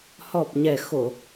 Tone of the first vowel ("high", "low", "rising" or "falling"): low